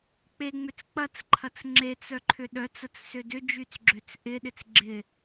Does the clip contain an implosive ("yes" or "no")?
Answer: yes